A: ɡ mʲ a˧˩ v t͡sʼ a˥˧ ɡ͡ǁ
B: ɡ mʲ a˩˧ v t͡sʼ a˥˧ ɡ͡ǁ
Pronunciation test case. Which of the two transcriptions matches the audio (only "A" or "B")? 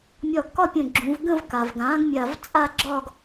A